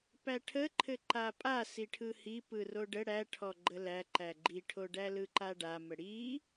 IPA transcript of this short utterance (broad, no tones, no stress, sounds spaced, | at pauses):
p æ ʈʰ ə ǃʰ ɘ ǃ a pʼ a s i ʈʰ ɯ h i p ɯ r o ɖ ə ɽ æ ʈʰ ɔ ɡ͡ǃ ə l æ ǃ æ ɡ͡ǃ i ʈʰ o ɖ æ l ɯ ǃ a ɖ a m ə ɽ i